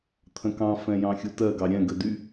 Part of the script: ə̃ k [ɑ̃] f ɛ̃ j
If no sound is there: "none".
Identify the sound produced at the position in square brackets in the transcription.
ɑ̃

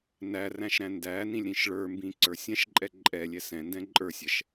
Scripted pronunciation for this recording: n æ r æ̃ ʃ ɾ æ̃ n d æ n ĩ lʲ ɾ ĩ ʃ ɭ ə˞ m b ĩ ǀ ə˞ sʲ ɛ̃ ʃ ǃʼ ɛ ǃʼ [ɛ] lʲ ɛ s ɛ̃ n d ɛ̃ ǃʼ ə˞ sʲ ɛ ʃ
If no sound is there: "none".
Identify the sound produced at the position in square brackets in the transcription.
ɛ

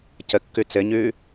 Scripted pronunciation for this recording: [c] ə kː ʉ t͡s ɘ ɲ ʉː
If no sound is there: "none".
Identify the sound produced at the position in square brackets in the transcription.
c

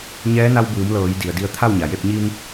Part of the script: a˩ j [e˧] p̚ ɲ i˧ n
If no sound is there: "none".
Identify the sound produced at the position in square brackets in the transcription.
e˥˨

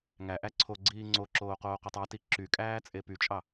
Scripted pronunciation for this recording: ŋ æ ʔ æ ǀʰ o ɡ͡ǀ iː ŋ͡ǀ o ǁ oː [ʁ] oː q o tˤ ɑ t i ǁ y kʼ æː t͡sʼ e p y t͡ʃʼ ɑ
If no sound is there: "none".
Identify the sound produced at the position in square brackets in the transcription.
q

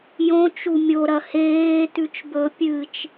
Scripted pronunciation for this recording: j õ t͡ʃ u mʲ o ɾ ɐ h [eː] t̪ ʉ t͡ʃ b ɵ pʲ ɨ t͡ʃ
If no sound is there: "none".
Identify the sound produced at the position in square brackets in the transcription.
eː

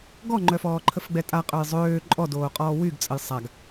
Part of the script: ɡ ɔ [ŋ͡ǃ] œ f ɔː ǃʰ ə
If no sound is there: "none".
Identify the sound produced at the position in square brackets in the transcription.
ŋ͡ǃ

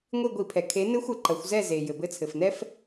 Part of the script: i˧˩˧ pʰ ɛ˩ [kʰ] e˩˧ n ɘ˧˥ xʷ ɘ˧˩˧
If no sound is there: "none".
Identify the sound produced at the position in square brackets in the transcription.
kʰ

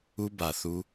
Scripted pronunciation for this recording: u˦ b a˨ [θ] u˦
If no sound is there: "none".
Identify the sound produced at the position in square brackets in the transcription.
θ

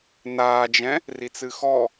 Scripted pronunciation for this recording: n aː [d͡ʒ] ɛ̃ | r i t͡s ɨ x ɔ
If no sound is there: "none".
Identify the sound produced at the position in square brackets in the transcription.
d͡ʒ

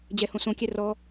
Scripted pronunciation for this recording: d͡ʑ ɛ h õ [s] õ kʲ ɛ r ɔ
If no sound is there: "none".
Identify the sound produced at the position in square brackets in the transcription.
s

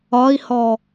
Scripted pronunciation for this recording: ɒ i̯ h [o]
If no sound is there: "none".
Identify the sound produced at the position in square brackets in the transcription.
ɔ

